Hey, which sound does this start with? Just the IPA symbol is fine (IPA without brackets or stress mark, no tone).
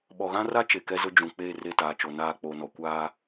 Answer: ɓ